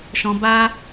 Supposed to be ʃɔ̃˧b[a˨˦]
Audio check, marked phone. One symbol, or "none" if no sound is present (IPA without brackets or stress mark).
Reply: a˦